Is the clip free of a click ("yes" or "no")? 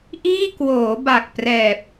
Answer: yes